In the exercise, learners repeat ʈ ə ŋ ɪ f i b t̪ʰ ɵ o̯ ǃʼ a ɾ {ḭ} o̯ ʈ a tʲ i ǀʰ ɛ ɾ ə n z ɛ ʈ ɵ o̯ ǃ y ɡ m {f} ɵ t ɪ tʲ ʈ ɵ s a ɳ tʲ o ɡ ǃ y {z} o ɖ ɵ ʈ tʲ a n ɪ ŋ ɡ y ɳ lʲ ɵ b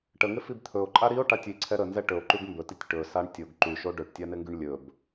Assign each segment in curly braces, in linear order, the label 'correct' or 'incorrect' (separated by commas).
incorrect, incorrect, incorrect